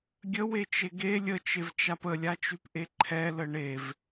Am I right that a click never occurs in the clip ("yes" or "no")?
no